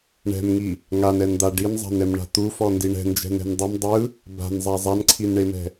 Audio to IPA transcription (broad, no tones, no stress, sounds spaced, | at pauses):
ɳ ɛ̤ m ŋ i | ŋ a n ɛ n d̪ a ɖ i n zˤ a̤ n ɛ m ɳ a̤ t̪ u f ɔ n d i ɳ ɛ̤ n d͡ʒ ɛ̤ n ɛ̤ n dˤ ɯ m dˤ ɯ | b a̤ n zˤ a zˤ a n ǀʰ i n ɳ e m ɛ̤